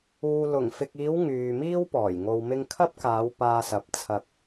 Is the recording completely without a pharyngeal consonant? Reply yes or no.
yes